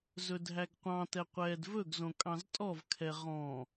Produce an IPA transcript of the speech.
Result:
z ɵ dʱ æ ɡ qʷ ɑ̃ t ɛ qʷ ɛː d v ɵ ɡ z õ kʼ ɑ̃ z tʼ ɔ v kʰ ɛ ʁ ɔ̃

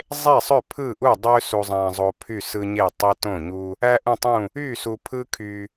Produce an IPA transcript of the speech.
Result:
zˤ e˥˩ sˤ ø˥˩ pʰ ɯ˥˩ ʔ u˥˩ dˤ ø˦ s u˨ zˤ æ̃˨ zˤ o˨ pʰ y˥˩ s ɯ˦ ɲ e˥˩ tˤ i˦ t õ˥˩ ɲ u˦ | æ˦ ʔ ũ˥˩ tˤ ũ˥˩ | y˥˩ s u˨ pʰ ɯ˦ kʰ y˨

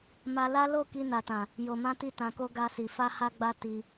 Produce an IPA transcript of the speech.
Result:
m a˧ l a˦ l o˦˨ k i˧ n a˨ t ã˨ | j o˨ m ã˧ t i˧ t ã˨ k o˧ ɡ a˧ s i˨ f a˧ h a˧ ɡ͡b a˧ t i˧

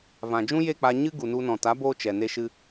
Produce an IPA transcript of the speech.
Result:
v ã˨ d͡ʒ ũ˦ j e˦˨ k͡p a˧ ɲ ɨ˦ ɡ u˨ n u˧ n ɔ̃˨ t a˨˦ b oː˧ t͡ʃ ɛ˨ n e˧ ʃ ɨ˧

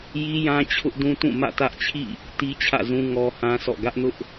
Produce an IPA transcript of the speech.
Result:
j i˦ j ã˦ t͡ɕʰ ʊ˦ ʔ d ũ˦ t ũ˦˨ m ä̰˦˨ t ä˦ ʔ t͡ɕʰ ḭ˦˨ | t i˦ t͡ɕʰ ä̰˦˨ z ũ˦ ŋ ɔ˦ h ã˦ sʰ ɔ̰˦˨ ɡ ä˦ ʔ n ʊ˦ ʔ

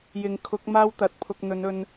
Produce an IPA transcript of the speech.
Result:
j ɪ˨ ŋ kʰ ʊ˨˥ k̚ m aː˥ w t̪ ɐ˨ t̚ pʰ ʊ˧ k̚ n̪ ɵ˨˧ n ɵ˧ n

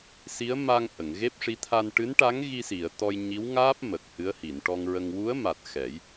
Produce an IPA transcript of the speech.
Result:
s i˧˥ ə̯ m a˧ ŋ ʔ ə˨˩˨ ŋ ɣ e˦˥ p̚ ʂ i˧˥ t̪ʰ a˧ n ʈ ɨ˧˥ n ʈ a˧˥ ŋ ɣ i˧ s i˨˩˨ ə̯ t̪ ɔ˧ j ɲ i˧˥ w ŋ aː˦˥ p̚ m ə˨˩ k̚ h ɨ˧˥ ə̯ h i˨˩˨ n ʈ ɔ˧ ŋ ɹ ə˧ ŋ w u˧˥ ə̯ m a˨˩ t̚ x ɛ˨˩˦ j

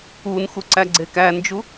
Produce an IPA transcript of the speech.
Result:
u n x u ǀ æ ɡ͡ǀ e k æ n d͡ʒ u

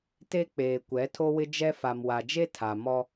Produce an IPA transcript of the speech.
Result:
t e˦ k͡p eː˨ kʷ ɛ˨˦ tʰ o˦ w ɪ˦ d͡ʒ ɛ˦ f a˨ m w a˨ d͡ʒ e˦ tʰ a˨ m ɔ˦

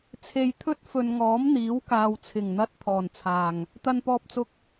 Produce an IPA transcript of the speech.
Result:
t͡sʰ e˨ j t̪ʰ ɵ˥ t̚ f ɵ˨ n ŋ ɔː˨˥ m n̪ iː˨˥ w k aː˨ w t͡sʰ ɪ˨˩ ŋ n̪ ɐ˧ t̚ t̪ʰ ɔː˨˩ n t͡sʰ aː˨˩ ŋ | t̪ ɐ˧ n p ɔː˧ p̚ t͡s ʊ˧ k̚

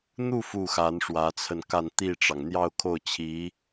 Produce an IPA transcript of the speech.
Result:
n̪ u˥˧ f u˥˩ x a˧˥ n ʂ w ä˧˥ t͡sʰ ə˧ n k a˥˧ n t̪ i˥˩ ʈ͡ʂ ɑ˩ ŋ n̪ j ɑ˥˧ ʊ̯ kʰ o˥˩ ʊ̯ t͡ɕʰ i˧˥

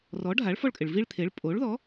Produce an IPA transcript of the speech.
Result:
r ɔ˩˥ ɖʱ a˩˥ ɭ f ɔ˦˨ ɭ kʼ ɪ˩ ɭ v i˦˨ ɭ t̪ʰ e˩˥ ɭ pʼ o˩˥ ɭ ð ɔ˩˥

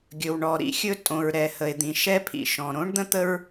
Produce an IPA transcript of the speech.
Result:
ɡʲ ɵ˨ w ɳ ɔ˨ ɾ ḭ˦ xʲ ɵ˦ tʼ õ˨ ɹ ɾ ɛ˨ h ə˨ e̯ d̪ ĩ˨ ʃ ɛ˦ pʰ ḭ˨ ʃ ɔ̃˨ ɾ õ˥ ɳ d̪ ə̃˥ t̪ ə˥ ɹ

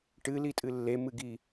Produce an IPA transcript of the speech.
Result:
ʈ ɨ l i tʼ ɨ lː e m ɨ ɡ i

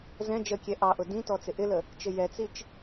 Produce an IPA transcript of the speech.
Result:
z ɛ̃ d͡ʒ ə kʲ ɛ ʔ ɑ ʔ ʊ d ĩ t ɔ t͡s ɪ ʔ ɪ l ə | t͡ʃ ɪ j ɛ t͡s i t͡ʃ

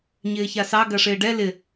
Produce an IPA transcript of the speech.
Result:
ɲ ɪː ç a s ɑ ɡ ɐ ʂ ɪː ɖ ɛ l ɪ

